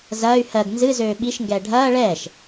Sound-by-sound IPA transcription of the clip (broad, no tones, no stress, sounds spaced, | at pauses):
z ɐː y̯ h ɜ ɡ n z ɨ z øː ɓ i ʃ ŋ ɡ ɛː ɖʱ ɐː ɭ ɛː ʃ